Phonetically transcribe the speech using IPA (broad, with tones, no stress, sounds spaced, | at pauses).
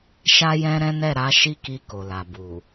ʃ a˦ j ɛ̃˦ ɾ ɛ̃˦ n ɛ˦˨ ɾ a˨˦ ʃ i˦ k i˧ k o˨ l a˨ b u˨